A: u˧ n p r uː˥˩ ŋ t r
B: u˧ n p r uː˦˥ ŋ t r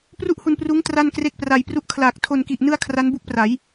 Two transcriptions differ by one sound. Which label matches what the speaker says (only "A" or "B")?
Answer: B